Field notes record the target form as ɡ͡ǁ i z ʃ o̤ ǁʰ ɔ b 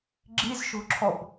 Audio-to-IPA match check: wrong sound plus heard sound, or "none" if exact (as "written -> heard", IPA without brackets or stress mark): none